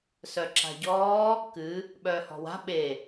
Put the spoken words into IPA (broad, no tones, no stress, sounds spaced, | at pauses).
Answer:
s œ ǁ a̤ ɟ ɔː | k ɨ | ɓ œː h ɔ̤ w a̤ ɓ e